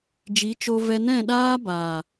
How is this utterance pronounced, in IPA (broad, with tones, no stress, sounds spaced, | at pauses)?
d͡ʒ i˨˦ t͡ʃ o˧ v ɛ˧ n ɛ̃˦˨ ɗ aː˦ b aː˨